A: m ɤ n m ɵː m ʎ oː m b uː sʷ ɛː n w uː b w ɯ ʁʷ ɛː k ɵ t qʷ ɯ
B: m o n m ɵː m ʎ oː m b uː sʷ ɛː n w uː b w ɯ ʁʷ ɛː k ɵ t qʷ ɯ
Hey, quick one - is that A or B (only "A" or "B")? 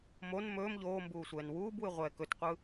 B